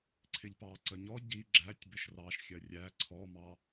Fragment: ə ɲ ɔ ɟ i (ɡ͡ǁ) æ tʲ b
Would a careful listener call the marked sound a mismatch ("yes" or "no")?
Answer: no